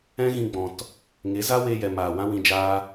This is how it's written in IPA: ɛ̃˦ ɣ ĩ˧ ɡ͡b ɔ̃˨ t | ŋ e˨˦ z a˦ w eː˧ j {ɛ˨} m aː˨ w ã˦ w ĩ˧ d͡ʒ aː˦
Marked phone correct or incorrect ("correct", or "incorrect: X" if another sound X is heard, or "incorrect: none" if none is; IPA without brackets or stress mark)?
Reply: correct